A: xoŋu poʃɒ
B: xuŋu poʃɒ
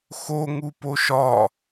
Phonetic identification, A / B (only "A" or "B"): A